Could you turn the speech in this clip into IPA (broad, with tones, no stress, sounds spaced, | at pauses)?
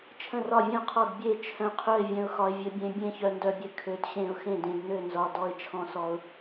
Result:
t͡ʃʰ ə̃˥˩ r ɒ˥˩ vʲ ə̃˥˩ ʊ̯ qʰ ɒ˥˩ d bʲ e˥˩ t͡ʃʰ œ̃˧ qʰ œ˥˩ ɪ̯ vʲ œ̃˧ ʊ̯ x ɒ˧ ɪ̯ vʲ ɘ˧ bʲ ẽ˧ bʲ ẽ˥˩ ç œ˧ n d œ˧ bʲ ɘ˧ kʰ ø˧ d ɕ ẽ˥˩ ʊ̯ x ẽ˥˩ d ẽ˧ d n ø˥˩ n z ɒ˧ d ɔ˧ ɪ̯ t͡ʃʰ ɔ̃˧ s ɔ˧ ʊ̯